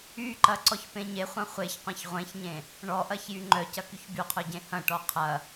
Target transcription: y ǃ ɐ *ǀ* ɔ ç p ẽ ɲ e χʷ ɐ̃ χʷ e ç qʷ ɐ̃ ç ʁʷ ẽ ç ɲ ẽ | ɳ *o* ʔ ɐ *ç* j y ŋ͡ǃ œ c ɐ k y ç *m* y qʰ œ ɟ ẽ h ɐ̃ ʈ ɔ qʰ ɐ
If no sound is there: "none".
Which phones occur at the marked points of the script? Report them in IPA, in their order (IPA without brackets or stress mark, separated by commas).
ǀ, ɔ, ç, b